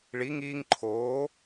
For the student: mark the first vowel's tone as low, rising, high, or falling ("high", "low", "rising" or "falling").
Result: rising